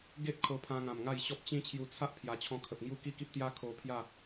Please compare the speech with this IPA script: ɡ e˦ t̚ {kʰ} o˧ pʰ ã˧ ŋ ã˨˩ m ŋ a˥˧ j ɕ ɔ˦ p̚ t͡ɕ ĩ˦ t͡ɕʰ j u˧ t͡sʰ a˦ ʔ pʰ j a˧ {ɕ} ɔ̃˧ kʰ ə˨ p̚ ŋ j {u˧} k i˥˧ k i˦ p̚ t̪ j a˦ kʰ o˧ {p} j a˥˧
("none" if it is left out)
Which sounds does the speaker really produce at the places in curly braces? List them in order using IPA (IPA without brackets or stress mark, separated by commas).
kʰ, t͡ɕʰ, u˥˧, pʰ